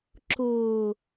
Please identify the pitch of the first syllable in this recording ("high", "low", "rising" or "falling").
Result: low